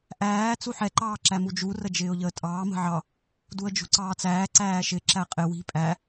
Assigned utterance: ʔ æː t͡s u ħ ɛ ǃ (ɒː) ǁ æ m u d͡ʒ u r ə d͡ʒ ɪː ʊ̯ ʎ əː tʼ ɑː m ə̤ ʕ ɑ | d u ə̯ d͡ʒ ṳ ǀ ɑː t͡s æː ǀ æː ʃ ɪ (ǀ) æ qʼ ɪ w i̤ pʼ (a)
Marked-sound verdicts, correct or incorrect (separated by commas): incorrect, incorrect, incorrect